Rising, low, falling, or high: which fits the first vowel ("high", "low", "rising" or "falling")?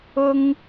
high